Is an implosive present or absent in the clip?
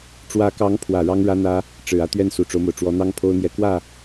absent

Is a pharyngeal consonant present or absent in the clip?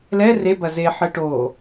present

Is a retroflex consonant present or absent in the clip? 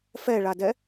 present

